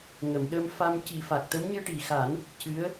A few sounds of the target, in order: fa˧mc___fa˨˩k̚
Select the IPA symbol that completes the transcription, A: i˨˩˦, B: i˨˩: A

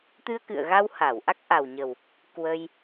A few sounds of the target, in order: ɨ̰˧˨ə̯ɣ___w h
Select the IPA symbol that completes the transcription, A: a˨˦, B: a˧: B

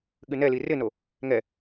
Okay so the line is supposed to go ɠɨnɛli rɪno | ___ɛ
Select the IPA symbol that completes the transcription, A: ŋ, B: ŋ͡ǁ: A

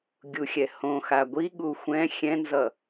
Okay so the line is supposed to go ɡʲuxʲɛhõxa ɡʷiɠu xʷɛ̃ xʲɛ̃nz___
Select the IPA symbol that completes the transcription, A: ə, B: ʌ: B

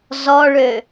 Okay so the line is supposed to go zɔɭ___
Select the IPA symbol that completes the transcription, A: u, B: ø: B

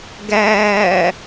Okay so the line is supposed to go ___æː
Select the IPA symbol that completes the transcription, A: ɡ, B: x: A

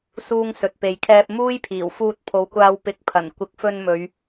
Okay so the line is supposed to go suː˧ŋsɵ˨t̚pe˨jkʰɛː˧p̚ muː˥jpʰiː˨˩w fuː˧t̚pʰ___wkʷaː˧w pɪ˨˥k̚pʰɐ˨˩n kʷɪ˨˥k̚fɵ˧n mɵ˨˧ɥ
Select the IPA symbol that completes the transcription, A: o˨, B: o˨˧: B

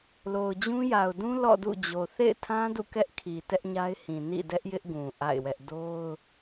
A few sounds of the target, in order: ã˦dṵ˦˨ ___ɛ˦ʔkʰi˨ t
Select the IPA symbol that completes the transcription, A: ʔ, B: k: B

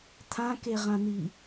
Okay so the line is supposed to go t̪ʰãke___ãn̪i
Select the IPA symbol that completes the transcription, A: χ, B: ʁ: B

